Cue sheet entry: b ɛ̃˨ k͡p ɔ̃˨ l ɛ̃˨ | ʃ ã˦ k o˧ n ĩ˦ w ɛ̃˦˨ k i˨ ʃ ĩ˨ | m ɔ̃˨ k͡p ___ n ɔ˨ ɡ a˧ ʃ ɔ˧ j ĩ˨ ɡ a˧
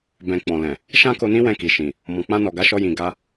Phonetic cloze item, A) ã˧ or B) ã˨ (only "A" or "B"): A